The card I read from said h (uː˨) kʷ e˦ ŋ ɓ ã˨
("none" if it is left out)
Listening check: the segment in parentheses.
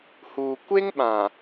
uː˨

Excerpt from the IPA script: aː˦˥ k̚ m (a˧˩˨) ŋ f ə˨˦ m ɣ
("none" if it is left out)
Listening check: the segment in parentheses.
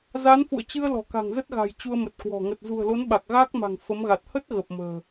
a̤˨˩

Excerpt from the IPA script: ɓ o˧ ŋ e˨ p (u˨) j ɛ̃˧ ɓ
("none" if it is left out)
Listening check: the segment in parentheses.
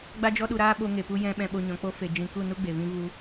u˧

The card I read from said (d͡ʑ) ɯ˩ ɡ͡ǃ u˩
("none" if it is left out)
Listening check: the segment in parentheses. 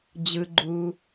d͡ʑ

